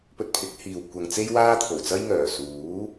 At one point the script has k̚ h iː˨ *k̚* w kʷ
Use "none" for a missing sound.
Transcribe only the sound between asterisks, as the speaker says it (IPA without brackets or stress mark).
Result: none